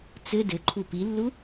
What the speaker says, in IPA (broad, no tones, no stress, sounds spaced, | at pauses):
t͡s ɘ d ɘ ǃʰ u p i lː u